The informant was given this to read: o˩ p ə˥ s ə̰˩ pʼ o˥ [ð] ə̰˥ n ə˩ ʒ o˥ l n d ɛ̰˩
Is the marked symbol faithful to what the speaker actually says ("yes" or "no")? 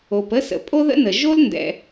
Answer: yes